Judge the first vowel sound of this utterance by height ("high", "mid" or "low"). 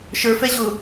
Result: mid